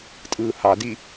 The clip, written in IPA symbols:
tʼ ɯː h ɑ d i

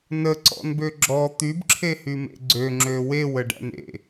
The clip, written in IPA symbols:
n ə ǀ ɔ̰ n b ø ɡ͡ǁ ɔ t̪ y b ǁʰ e h y m ḛ ɡ͡ǀ ø ŋ͡ǁ ø w e w ə ɖ æ̰ n ḛ

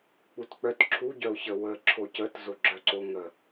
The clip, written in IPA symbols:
k͡p u t k͡p œ t ǁʰ u ɟ œ ʊ̯ ç ə w ə ǁʰ o c ə t z o ɡ͡ǁ œ ǀ o ŋ ə

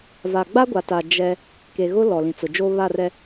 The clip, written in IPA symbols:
v a˨ ɡ͡b a˦ ɡʷ a˨ t a˨ d͡ʒ ɛ˦ | k e˨ ɣ ʊ˦ l ɔ˨ l ĩ˨ t͡s ʊ˨ d͡ʒ oː˦ β a˦˨ r ɛ˦

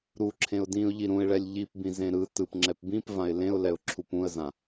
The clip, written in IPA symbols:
ɾ u ǁʰ ẽ ʊ̯ d ĩ ʊ̯ ʎ i ɾ ũ ɪ̯ ɭ ɛ lʲ ʎ i p b ĩ z ẽ ɾ ɯ t ɯ p ŋ͡ǁ ɛ p b ĩ p v ã ɪ̯ l ẽ ʊ̯ l ɛ ʊ̯ ǁʰ u p ũ ə̯ z ã

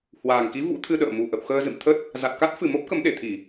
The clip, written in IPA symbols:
h w aː˨˩ ŋ k i˨˦ v ṵ˧˥ t̪ʰ ɨ˧ ɗ ə̰ː˧˨ m u˨˩ ʔ ə̰˧˨ w x əː˧ z ɨ̰˧˨ m t̪ʰ ə˦˥ t̚ | z a˨˩ t̚ k a˦˥ t̚ f ɨ˨˩ m o˦˥ p̚ k ə˨˦ m ɗ e˧˩ t̪ʰ i˧˩˨

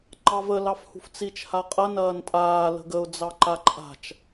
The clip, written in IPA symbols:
ŋ͡ǃ ɑ v ə l ɑ f h ṳ f t͡s i t͡ʃ h a qʼ ɐ n ɐː n tʼ aː l ə̤ ɡ ə ʊ̯ d͡z ɑ ǃ a ǃʼ a̤ t͡ʃ

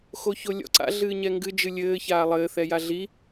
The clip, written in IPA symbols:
x o ç o lʲ ɔ̰ ǀ a̰ ɮ ɨː ɲ ɛ ŋ ɡ ɨ d͡ʒ ɨ lʲ ɘː ç aː lˠ ɘː θ ɛ j a ɮ i

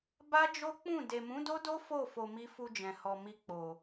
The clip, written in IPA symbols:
b a˦ d͡ʒ o˦ k͡p ũ˦˨ d e˨ m ũ˨˦ d o˦ d o˦ f o˦˨ f o˧ m i˦ f u˧ d͡ʒ ɛ̃˨ h ɔ˨ m i˧ k͡p o˨

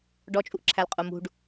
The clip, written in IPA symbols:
ɖ ɔ t͡ʃʼ u ʔ ǁʰ æ l qʼ u m ṳ ɖ

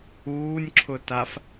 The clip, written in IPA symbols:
uː nʲ ǁʰ ʊ t a f

